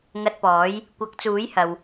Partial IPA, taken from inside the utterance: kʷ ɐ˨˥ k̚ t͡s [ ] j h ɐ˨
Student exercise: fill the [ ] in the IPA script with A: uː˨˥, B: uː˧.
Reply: A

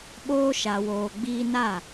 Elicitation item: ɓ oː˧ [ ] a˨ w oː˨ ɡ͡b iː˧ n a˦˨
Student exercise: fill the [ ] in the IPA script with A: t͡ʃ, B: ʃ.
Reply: B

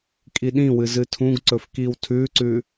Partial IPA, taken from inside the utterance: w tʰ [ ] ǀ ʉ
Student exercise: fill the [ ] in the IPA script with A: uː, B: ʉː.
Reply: B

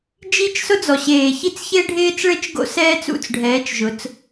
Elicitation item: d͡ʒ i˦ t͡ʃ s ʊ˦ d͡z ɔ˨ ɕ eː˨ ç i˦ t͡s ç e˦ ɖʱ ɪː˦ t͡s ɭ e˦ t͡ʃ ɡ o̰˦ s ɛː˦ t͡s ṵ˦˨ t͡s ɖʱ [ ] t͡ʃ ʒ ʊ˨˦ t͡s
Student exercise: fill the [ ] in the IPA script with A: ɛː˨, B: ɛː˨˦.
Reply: B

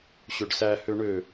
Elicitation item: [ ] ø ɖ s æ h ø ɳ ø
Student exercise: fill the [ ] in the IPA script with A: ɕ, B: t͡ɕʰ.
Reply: A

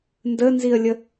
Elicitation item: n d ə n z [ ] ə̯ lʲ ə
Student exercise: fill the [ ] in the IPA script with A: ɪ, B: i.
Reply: B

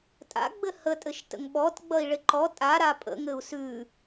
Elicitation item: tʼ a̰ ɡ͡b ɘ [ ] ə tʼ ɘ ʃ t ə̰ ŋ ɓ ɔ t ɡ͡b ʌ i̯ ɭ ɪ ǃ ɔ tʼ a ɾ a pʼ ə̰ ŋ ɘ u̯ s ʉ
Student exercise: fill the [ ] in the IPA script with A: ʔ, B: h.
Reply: B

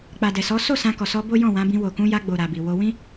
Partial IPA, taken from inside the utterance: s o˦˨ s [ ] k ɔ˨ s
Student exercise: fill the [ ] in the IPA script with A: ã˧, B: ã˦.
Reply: A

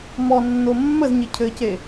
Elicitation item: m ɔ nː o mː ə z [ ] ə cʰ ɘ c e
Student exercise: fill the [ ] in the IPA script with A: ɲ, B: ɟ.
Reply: A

